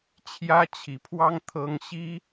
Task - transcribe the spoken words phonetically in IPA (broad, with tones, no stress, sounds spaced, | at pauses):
t͡ɕʰ j ä˥ t͡ɕʰ i˧˥ pʰ w ɑ˥ ŋ t̪ʰ ɤ˥ ŋ ɕ i˥